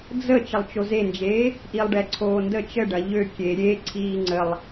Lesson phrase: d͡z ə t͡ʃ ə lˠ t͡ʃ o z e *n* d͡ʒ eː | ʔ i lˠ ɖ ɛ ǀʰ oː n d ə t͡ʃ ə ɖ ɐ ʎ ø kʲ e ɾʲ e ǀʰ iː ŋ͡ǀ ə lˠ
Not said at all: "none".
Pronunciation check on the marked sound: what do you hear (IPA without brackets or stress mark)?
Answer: n